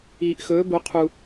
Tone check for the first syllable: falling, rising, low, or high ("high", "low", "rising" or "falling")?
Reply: low